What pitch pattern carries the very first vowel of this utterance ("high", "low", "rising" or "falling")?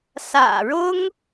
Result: low